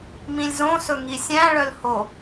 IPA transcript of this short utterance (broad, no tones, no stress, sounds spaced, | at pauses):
m ĩ lʲ z õ s ɵ ŋ i sʲ æ̃ ɭ œ l h o